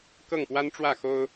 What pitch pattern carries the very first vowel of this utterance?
falling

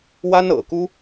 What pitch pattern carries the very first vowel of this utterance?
high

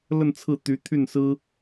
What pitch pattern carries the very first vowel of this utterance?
falling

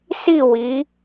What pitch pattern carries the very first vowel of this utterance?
falling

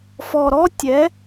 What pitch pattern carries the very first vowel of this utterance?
low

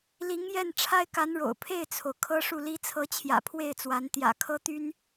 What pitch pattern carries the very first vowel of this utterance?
rising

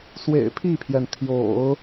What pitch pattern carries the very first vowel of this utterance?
low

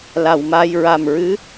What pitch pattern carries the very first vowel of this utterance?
low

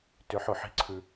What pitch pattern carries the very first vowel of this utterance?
rising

